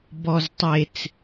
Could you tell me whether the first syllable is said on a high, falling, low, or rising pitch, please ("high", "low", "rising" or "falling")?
low